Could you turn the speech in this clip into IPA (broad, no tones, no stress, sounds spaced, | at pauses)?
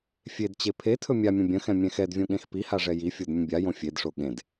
fʲ e d t͡ɕ e pʰ e tʰ ɵ mʲ a mʲ ə̃ bʲ ə̃ x ɛ̃ mʲ ɛ̃ x ɛ d vʲ õ ɠ ẽ x p i h a ʐ ɛ j i fʲ o d mʲ ə̃ bʲ a j õ fʲ e d ʂ o ɠ ẽ d